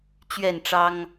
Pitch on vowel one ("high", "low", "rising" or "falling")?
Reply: falling